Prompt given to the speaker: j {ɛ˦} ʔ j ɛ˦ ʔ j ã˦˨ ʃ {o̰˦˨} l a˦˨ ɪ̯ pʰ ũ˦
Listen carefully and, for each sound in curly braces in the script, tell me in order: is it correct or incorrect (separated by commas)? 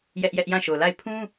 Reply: correct, incorrect